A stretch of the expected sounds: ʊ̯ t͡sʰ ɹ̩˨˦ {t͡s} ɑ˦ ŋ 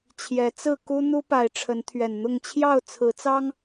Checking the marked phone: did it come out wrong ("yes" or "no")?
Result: no